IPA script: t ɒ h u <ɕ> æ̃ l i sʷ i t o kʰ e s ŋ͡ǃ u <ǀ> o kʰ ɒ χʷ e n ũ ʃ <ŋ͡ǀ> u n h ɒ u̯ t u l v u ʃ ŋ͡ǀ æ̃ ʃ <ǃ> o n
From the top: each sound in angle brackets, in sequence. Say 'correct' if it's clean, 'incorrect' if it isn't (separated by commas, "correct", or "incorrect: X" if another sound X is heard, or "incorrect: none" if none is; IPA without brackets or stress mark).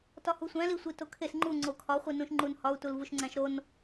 incorrect: sʷ, incorrect: ŋ͡ǀ, incorrect: ŋ͡ǃ, incorrect: ɾ